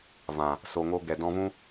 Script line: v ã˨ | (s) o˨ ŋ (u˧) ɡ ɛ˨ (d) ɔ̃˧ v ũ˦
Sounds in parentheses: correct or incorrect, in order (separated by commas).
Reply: correct, incorrect, correct